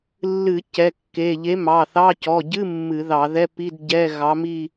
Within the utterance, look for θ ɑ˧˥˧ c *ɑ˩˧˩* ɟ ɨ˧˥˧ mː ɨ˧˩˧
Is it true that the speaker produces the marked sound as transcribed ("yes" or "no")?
no